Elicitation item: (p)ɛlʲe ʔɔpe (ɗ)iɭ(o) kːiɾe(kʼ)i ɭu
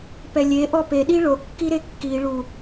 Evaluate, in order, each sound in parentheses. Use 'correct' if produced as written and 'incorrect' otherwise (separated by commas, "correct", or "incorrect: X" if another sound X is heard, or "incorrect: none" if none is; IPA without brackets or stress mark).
correct, correct, correct, incorrect: kː